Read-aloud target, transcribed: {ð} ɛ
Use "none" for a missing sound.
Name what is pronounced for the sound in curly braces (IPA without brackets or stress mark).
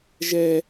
ʒ